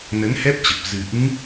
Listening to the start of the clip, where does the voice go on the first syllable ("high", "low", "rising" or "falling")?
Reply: rising